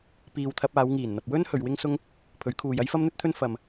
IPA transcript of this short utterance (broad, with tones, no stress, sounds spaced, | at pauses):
p iː˨ w t̪ʰ ɐ˧ p̚ aː˨˧ w ŋ iː˨˩ n n̪ ɐ˨ p̚ w ɵ˥ n h ɵ˨ ɥ w ɪ˥ ŋ s ʊ˥ ŋ | pʰ ɵ˨˥ ɥ kʰ uː˨ j ɐ˥ j f ɐ˥ m n̪ ɵ˥ t̚ t̪ʰ ɵ˥ n f ɐ˨ m